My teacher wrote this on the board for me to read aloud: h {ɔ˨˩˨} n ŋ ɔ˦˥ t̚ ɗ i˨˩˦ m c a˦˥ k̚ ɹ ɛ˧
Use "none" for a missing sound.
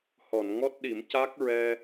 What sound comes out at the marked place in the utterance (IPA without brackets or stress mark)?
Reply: ɔ˨˩˨